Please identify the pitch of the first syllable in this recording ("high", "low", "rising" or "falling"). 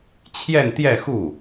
falling